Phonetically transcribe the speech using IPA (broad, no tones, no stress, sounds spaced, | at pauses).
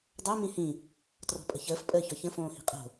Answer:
dˤ o m ĩ h ĩ | t r ɔ̤ pʼ ə̤ ç əː f pʼ əː ç ɔ ç ə̃ f õː h i̤ qʼ o̤